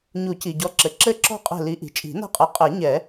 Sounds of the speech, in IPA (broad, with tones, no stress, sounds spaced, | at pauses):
ɲ u˨˩˦ c i˩ ɟ ɔ˨˦ ǁ ɘ˩ ǁ ɘ˦˨ ǁ ɔ̤˦˨ qʼ ɛ̤˦˨ l i˨˦ ʔ i̤˩ t͡ʃʼ i̤˨˩˦ n a̤˦˨ qʼ ɛ˨˦ qʼ ɛ˨˩˦ ɲ ɛ˨˩˦